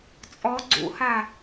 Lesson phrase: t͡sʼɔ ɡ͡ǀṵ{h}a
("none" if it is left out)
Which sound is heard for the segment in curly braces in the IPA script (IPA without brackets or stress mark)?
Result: h